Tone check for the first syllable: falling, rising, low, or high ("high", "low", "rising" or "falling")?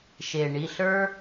low